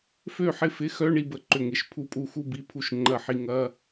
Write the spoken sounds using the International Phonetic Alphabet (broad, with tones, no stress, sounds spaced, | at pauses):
f ø˥˩ ħ ɪ˥˩ f ɪ˧˥˧ x œ˧˥˧ ɳ i˥˧ b ə˥˩ ǃ ʏ˥˩ ŋ ɪ˧˥˧ ʃ pʰ u˥˩ pʼ u˥˧ x u˥˧ b i˧˥˧ pʰ u˥˩ ʃ ŋ͡ǃ ɐ˥˩ ħ i˥˧ ŋ ɐ˧˥˧